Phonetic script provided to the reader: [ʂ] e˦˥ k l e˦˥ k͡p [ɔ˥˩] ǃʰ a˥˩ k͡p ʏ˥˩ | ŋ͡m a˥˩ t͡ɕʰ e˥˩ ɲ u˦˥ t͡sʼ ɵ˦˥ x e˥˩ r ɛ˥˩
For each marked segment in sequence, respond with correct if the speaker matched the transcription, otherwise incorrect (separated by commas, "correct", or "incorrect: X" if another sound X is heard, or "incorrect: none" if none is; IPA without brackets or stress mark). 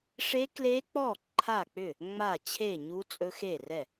correct, correct